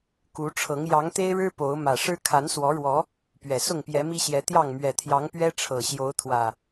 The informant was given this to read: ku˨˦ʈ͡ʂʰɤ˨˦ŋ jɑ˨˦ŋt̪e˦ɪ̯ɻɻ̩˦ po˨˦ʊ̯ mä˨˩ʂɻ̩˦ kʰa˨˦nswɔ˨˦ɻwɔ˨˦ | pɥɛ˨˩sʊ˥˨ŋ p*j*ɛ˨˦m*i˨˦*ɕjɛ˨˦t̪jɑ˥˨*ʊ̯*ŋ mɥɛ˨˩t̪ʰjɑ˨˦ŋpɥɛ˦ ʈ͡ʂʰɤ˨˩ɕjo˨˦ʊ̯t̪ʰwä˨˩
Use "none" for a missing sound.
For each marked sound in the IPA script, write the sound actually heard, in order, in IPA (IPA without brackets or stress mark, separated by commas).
j, i˦, none